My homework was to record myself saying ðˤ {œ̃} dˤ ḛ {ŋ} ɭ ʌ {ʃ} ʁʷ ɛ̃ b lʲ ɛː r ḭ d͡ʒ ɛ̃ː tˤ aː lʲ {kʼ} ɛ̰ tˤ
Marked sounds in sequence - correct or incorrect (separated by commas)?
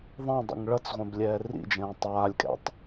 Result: incorrect, correct, incorrect, correct